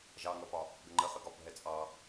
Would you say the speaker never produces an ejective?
no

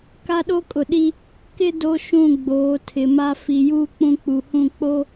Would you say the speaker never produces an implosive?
no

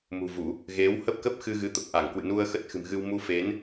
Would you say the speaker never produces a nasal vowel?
yes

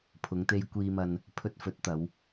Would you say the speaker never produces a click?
yes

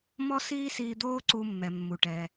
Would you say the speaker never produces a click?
no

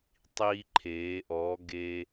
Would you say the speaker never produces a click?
no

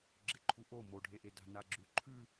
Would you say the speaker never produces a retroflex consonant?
no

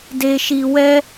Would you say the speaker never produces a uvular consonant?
yes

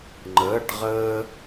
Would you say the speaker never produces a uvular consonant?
no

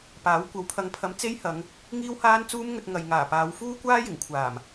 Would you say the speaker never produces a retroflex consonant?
yes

